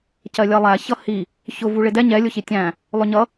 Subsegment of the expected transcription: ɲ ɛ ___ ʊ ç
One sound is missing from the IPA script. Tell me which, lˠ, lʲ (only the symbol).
lʲ